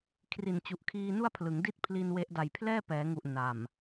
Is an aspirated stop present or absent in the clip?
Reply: present